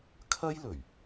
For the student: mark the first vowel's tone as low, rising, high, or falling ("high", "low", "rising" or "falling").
high